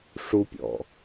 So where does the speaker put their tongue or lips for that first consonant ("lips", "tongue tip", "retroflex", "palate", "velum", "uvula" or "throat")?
retroflex